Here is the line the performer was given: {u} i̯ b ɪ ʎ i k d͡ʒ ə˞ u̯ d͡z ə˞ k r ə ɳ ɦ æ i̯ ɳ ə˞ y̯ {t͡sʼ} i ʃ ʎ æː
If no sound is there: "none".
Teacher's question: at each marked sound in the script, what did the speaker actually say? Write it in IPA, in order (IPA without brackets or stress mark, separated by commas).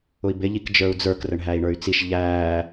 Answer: ʊ, t͡s